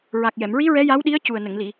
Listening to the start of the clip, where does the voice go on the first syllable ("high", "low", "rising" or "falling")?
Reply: low